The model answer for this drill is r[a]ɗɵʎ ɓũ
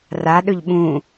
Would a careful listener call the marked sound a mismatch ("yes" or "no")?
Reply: no